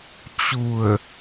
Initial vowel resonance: oral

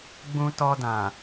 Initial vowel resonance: nasal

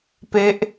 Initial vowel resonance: oral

